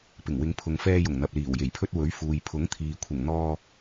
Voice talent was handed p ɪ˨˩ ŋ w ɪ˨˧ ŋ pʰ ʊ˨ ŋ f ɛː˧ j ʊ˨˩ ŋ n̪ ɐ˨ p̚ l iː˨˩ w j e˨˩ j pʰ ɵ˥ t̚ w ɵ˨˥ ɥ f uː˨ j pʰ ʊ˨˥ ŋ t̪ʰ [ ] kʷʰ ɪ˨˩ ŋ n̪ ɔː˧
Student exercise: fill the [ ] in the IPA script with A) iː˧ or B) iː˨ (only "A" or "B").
B